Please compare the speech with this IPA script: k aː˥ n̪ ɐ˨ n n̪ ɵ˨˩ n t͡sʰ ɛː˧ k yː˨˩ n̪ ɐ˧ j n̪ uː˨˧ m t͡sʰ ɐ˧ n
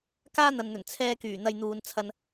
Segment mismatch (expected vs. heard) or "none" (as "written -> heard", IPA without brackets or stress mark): m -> n